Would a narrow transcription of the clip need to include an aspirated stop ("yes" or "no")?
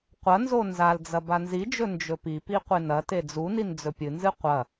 no